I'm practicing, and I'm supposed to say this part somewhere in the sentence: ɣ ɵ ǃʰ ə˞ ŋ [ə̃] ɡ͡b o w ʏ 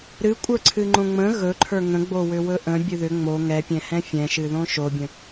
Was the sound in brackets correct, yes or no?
yes